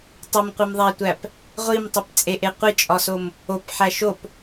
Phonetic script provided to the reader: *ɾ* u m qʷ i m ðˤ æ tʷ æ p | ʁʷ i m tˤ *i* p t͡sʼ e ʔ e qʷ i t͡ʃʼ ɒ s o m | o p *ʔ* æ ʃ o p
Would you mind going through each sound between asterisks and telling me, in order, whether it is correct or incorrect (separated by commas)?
incorrect, correct, incorrect